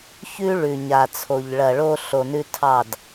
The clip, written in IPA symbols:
çʉ˦ ɭʉ˨ɲa˨t͡sʰo˨ʎ ɭɐ˨ɭo˧ ɬo˨nʉ˧ tʰɑ˦˨d

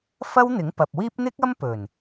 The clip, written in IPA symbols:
fɐ˥wn̪ɪ˨˥ŋpɐ˨p̚wiː˥p̚ n̪ɪ˥k̚ɐ˥m pɵ˨˩n

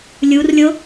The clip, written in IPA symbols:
lʲurlʲo

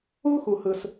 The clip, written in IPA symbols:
u˥ xu˩hɯ˩s

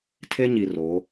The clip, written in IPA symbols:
tʰe˦ɲi˨ ro˨˦

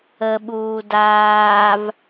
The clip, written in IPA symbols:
əɓuː daːv

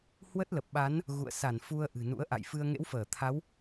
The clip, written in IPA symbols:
hwə˦˥t̚lə˨˩p̚ɓa˨˦n | ɣṵ˧˨ə̯sa˧˩nfu˧ə̯ ʔɨ̤˨˩nṵ˧˥ə̯ ʔa̰˧˨jfɨ˧ə̯ ŋḛ˧˥wfəː˧˩ t̪ʰa˨˦w

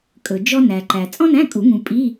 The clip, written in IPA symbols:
kʼɵ˨d͡ʒɔ˥ næ˨ǃæ˨ t͡sʼɔ̃˥næ̃˧˥˧kʼu˨˩˦ŋũ˨ pʼi˧˥˧

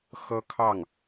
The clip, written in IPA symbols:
xɤ˥kʰɑ˥˩ŋ

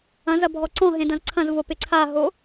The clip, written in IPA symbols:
ɐ̃zɐ bʱɔǀɔ̃ɦẽ dɐ̃zǀʰɐ̃zvo pɪǀʰaɦo

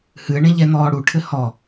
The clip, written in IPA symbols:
hɨə̯ɳẽ ʎɛn̪ɔːɽuʈʰɘ hɔ

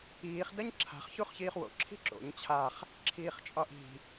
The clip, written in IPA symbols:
iːχdɐɲ ǁʰa̤χçuχ çiːχwo̰ ǁʰi̤ǁo̰ɲ t͡ɕʰaχ | ǁʰiːχt͡ʃʼɒʔi̤

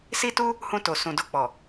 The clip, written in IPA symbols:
si˦tu˦ | hũ˧ to˨sũ˨ do˧k͡pɔ˨

